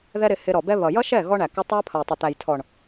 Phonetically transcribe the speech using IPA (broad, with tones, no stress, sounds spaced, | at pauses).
ð ɛ˦ ɾ ɪ˧ h ɪ˧ ɾ ɔ˨ b ɛ˦ β ʌ˨ j ʌ˦ ʃ ɛ˦˨ ɣ ɔ˦ ɳ æ˨ k u˧ tˤ æ˦ pʰ ʌ˨ j tˤ ə˨ t̪ æ˨ j tʰ ɔ˨ ɳ